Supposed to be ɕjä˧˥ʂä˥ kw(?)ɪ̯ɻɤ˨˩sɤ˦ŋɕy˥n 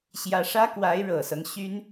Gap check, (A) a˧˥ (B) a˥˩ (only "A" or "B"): A